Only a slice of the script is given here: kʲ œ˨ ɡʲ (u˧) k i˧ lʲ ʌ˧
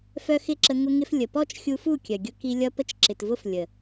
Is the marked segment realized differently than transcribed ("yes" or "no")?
yes